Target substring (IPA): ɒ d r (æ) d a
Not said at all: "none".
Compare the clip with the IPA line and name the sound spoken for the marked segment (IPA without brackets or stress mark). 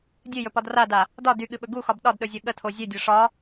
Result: a